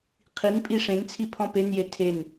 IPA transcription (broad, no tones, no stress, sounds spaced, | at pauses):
qʰ i n pʼ i ʂ ẽ n t͡sʰ i pʰ ɔ̃ p e n j e tʰ e n